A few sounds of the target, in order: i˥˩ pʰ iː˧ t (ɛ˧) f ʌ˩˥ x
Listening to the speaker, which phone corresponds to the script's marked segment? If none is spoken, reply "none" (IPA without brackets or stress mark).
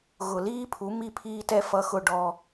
ɛ˧